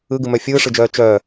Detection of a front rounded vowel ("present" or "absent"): present